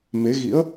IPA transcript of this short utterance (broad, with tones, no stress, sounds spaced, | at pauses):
m e˨˦ ɣ ḭ˧˥ ə̯